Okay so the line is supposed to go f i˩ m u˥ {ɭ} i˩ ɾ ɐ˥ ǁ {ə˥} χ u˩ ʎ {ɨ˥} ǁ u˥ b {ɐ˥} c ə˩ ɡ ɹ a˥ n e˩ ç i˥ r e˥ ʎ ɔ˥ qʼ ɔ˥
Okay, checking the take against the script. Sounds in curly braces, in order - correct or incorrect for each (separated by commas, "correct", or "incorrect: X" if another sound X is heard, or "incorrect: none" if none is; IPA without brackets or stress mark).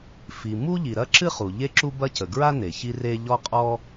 incorrect: ʎ, incorrect: ɨ˥, incorrect: e˥, correct